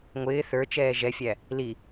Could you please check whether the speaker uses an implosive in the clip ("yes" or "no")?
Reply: no